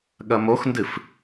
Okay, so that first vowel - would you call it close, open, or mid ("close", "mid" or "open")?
open